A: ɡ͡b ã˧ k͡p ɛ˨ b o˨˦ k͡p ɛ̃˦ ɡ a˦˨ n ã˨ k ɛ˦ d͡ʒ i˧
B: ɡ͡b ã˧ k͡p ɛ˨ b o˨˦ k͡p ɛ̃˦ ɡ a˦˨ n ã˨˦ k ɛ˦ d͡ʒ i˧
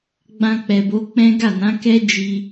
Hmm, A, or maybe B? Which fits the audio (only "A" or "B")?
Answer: B